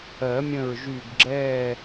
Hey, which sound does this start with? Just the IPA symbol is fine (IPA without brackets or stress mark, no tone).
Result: ɜ